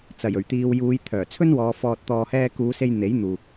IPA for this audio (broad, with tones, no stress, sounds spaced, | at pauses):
t͡s ɐ˨˩ j ɵ˨˩ ɥ t̪ iː˧ w j uː˨˧ j t̪ʰ œː˨˩ t͡sʰ ɵ˥ n w ɔː˨˧ f ɔː˨ t̚ t̪ ɔː˨ h ɛː˧ k uː˨˧ s e˧ j n̪ e˨˥ j n̪ uː˨ k̚